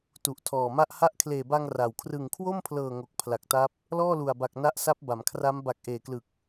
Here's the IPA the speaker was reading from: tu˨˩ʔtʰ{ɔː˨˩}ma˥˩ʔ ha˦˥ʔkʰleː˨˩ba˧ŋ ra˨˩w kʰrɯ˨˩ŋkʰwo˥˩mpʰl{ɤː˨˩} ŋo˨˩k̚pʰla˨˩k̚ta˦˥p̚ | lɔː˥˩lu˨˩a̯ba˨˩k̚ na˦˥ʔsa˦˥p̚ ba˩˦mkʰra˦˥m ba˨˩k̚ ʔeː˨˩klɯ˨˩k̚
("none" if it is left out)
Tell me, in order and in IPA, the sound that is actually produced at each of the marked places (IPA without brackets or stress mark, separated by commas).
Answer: ɔː˨˩, ɤː˨˩